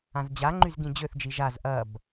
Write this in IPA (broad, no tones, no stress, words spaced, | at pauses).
ãzd͡ʑaŋ͡ǃyz ɡĩd͡ʑøθd͡ʒi ʒaz ʔɐb